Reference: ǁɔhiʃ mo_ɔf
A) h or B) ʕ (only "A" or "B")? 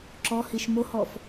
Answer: A